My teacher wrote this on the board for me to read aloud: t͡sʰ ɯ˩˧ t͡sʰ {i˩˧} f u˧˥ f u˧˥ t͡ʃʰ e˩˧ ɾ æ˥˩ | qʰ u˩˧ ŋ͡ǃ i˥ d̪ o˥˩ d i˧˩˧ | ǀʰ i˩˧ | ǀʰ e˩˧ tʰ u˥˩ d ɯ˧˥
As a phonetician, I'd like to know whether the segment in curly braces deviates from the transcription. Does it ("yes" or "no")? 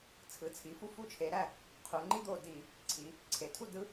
no